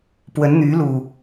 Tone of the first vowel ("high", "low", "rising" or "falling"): rising